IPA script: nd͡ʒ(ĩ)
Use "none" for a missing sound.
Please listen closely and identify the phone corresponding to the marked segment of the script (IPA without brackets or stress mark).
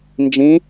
ĩ